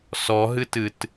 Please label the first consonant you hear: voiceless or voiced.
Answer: voiceless